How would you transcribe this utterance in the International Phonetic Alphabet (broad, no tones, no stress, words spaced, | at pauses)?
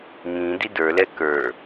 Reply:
ŋĩ didə˞lɛ kə˞